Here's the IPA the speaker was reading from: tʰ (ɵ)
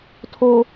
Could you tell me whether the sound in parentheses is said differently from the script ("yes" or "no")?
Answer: yes